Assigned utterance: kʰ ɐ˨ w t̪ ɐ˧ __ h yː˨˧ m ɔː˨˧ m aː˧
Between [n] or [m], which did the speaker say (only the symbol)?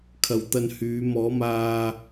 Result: n